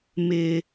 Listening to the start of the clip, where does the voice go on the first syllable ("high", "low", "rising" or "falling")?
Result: low